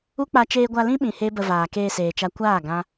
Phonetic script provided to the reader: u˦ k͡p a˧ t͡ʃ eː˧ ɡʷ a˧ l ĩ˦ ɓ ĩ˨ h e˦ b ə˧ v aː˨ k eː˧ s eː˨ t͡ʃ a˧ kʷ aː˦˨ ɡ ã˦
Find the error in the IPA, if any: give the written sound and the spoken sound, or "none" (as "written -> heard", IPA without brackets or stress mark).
none